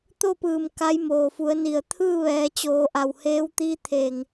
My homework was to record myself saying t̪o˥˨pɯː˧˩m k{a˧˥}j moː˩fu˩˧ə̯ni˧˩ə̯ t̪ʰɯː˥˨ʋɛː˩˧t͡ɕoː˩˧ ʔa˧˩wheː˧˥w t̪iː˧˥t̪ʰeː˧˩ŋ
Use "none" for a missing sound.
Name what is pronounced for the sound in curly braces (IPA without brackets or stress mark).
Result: a˧˥